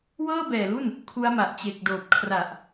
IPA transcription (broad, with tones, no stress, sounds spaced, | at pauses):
w ɤː˥˩ b ɛː˨˩ l u˥˩ n | kʰ u˦˥ a̯ m a˨˩ ʔ t͡ɕ e˨˩ k̚ d oː˨˩ p̚ kʰ r a˨˩ ʔ